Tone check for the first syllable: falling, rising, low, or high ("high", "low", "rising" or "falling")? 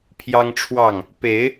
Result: high